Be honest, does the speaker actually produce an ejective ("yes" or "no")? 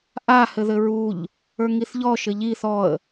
no